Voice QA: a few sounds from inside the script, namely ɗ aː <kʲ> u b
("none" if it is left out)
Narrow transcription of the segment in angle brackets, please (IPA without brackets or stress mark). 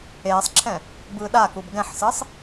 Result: k